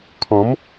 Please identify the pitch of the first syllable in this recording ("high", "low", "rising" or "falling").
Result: rising